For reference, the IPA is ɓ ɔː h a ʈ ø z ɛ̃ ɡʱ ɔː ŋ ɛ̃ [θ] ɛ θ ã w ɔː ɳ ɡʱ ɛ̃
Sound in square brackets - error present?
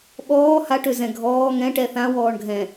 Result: yes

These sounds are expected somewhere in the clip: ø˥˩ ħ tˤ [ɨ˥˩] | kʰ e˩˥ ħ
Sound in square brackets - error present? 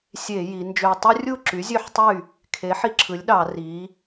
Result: yes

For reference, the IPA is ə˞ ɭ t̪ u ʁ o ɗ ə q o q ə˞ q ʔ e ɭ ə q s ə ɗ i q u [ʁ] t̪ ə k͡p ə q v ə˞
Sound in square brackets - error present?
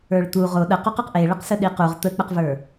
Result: no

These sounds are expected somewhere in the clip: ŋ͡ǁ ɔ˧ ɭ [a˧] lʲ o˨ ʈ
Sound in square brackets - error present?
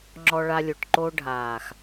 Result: no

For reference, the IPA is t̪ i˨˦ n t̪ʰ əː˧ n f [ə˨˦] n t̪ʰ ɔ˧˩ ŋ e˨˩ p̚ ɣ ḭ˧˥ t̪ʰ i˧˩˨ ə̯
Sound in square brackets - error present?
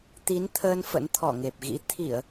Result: yes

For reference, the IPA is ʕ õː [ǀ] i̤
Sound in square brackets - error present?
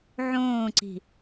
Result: no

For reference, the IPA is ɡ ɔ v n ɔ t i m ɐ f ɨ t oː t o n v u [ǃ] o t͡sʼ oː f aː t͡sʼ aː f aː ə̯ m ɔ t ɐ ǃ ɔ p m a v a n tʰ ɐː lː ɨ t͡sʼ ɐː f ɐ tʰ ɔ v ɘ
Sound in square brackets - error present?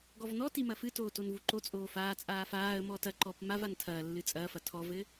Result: no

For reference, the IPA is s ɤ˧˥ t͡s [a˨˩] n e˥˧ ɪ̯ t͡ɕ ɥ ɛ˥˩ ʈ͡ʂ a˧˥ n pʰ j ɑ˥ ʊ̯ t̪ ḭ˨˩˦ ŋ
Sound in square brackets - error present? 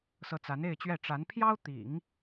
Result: yes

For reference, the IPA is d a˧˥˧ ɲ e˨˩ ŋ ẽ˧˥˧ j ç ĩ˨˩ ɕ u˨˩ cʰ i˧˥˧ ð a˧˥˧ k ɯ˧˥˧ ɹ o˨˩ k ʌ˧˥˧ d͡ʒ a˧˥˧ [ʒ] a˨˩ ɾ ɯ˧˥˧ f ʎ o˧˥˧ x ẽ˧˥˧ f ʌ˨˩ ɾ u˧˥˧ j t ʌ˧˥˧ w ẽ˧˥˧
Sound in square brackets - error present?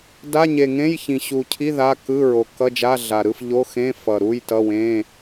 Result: yes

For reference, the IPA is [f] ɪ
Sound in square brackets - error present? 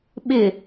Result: yes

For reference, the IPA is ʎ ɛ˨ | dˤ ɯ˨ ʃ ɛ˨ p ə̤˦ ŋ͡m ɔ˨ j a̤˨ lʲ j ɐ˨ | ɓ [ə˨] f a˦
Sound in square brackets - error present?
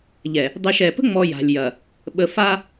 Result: no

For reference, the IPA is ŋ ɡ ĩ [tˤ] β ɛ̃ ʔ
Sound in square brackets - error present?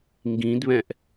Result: yes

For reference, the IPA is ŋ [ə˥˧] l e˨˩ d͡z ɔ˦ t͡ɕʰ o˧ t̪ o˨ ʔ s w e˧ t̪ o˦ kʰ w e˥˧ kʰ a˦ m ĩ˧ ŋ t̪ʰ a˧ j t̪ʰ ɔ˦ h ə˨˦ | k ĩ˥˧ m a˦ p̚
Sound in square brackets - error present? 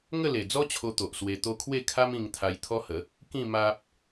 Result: no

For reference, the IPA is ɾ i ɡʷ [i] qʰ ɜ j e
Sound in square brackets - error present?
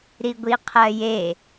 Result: no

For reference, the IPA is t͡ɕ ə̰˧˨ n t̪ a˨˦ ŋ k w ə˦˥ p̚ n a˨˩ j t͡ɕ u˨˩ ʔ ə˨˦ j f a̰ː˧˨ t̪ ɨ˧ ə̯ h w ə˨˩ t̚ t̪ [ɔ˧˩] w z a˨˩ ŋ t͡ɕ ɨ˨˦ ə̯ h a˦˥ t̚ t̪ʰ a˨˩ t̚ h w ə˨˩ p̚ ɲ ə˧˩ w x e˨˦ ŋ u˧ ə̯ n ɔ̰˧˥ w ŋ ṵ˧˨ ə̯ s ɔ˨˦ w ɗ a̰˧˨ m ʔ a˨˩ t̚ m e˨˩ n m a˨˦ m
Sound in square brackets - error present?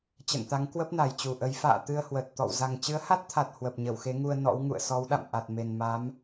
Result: yes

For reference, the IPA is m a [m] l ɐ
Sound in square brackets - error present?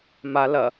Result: yes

